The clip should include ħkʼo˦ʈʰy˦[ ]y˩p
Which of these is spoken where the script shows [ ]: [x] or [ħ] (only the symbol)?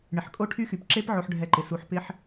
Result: x